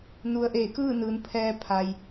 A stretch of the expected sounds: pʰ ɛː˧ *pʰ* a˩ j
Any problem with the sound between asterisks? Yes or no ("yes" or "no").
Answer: no